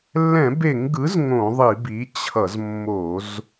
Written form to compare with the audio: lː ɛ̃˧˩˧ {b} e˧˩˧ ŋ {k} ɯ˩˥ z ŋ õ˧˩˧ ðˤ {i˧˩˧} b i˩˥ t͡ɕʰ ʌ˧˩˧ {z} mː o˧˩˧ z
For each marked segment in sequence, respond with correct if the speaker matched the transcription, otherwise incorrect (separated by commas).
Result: correct, incorrect, correct, correct